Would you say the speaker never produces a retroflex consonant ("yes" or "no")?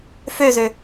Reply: yes